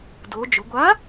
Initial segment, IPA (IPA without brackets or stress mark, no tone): d